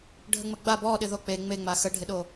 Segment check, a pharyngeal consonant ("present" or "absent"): absent